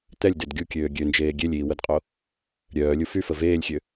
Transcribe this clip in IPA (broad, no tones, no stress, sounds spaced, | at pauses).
t̪ ɛ lʲ d e d ɡʲ u kʲ øː ɡʲ ø n d͡ʒ eː ɡʲ e lʲ iː w ə d qʼ o | ɾʲ œː lʲ u f y f ə v eː lʲ xʲ ø